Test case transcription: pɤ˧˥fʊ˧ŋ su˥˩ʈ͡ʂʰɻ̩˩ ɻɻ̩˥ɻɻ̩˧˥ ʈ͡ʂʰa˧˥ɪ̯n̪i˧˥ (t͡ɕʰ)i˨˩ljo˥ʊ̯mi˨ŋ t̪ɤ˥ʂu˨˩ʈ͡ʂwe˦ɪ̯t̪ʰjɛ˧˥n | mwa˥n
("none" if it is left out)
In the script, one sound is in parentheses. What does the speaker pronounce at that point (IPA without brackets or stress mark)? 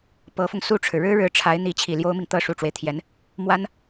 t͡ɕʰ